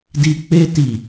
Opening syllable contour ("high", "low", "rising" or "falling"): low